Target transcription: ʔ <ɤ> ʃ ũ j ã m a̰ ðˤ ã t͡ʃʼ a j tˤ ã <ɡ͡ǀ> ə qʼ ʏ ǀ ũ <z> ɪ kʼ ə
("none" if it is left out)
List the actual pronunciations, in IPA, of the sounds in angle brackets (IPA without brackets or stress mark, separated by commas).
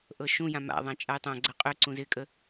ɤ, ɡ͡ǀ, z